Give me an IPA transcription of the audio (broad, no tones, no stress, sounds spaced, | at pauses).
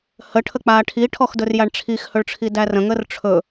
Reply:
h ə ʈʰ ə k͡p aː ʈʰ i ʈʰ ɔ x d ɵ r j a ɳ ʈ͡ʂʰ i x h ɵ ɭ ʈ͡ʂʰ i d æ r ə̃ ŋ ə r ʈ͡ʂʰ ɵ